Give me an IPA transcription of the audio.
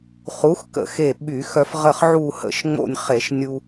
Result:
χ u˨˥ x k ə̰˧˩˧ x e˧˩ ɓ y˧˩˧ x œ˧ f ʁ ə˧˩ χ ʕ u˧˩ h ə̰˧˩˧ ʃ ŋ͡m o̰˧˩ nʲ χ e˧˩˧ ʃ nʲ u˧

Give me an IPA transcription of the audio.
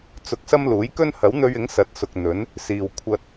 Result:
t͡s ʊ˧ k̚ s ɐ˥ m l uː˨˥ j k ɵ˥ n h ɐ˨˥ w n̪ ɵ˧ ɥ ɪ˨˥ ŋ s ɐ˨˥ t̚ s ʊ˨ k̚ n̪ ɵ˨˥ n | s iː˨ w kʷʰ ɐ˧ t̚

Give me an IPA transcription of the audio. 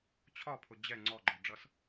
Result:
t͡ɕʰ ɒ pʰ ʊ d͡ʑ ɛ ŋ͡ǀ ɔ ɡ͡ǃ ɔ ɖ͡ʐ ʌ s

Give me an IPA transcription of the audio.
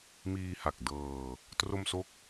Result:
m iː˧ h a˨˩ k̚ d ɤː˧ | t r o˧ m s o˦˥ k̚

